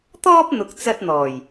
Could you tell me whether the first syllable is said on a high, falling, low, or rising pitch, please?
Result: high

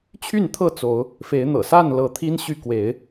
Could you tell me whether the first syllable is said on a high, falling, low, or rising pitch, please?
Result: falling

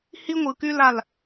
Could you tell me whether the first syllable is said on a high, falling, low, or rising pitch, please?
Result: high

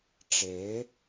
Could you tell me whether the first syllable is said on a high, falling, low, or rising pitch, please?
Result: rising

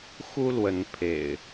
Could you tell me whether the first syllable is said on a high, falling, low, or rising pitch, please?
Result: high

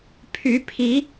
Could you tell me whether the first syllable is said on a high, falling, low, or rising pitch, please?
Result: rising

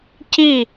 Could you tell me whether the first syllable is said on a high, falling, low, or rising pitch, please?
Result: falling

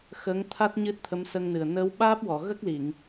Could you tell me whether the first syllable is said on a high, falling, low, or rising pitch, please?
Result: rising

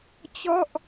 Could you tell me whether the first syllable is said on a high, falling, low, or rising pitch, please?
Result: falling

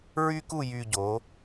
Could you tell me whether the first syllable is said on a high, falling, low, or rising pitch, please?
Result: high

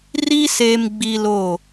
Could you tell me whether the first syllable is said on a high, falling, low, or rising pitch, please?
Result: high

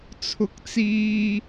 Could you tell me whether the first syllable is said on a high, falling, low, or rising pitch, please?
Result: rising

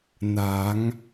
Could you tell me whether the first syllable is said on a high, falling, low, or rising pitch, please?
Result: rising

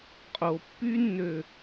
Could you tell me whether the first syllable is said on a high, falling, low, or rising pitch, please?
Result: low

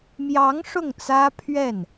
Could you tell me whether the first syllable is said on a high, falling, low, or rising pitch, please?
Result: rising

